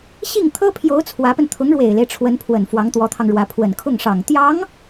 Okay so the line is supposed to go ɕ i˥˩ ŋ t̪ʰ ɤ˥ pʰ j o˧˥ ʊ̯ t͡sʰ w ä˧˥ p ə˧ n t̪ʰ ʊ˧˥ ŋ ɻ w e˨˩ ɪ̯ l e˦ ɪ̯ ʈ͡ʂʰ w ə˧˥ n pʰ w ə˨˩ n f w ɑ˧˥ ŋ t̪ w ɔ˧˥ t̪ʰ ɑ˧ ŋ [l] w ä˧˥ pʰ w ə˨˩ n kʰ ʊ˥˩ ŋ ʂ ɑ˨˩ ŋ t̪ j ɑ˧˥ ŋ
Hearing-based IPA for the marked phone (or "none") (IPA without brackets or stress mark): ɻ